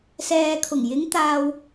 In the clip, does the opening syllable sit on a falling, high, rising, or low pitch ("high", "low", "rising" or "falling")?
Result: low